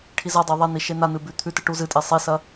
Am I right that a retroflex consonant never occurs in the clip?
no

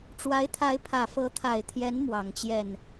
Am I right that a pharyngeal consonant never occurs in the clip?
yes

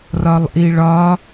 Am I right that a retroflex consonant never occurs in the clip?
no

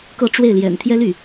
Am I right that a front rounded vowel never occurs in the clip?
no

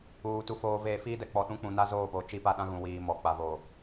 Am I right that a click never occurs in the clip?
yes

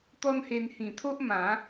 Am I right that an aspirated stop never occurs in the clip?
no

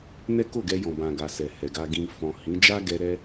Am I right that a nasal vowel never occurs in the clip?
no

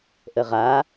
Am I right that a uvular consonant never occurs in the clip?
no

